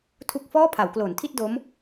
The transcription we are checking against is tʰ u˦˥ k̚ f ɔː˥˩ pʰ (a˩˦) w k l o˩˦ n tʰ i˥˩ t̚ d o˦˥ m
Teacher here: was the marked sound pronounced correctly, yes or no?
yes